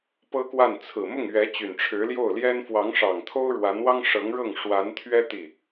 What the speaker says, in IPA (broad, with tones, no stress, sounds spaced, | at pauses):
p ɤ˥ k w a˥˩ n t͡sʰ ɹ̩˨˩ m ʊ˥˩ ŋ ɥ ɛ˧˥ t͡ɕ y˨˩ n ʈ͡ʂʰ ɻ̩˧˥ l j o˥˩ ʊ̯ l j ɛ˥ n f w ɑ˧˥ ŋ ʂ ɑ˨˩ ŋ t̪ʰ o˥ ʊ̯ ɻ w a˧˥ n w ɑ˥ ŋ ʂ ɤ˧˥ ŋ ɻ ɤ˥˩ ŋ ʂ w a˧˥ n t̪ʰ ɥ ɛ˥ t̪ i˥˩